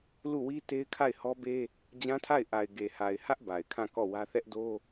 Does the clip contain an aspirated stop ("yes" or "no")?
yes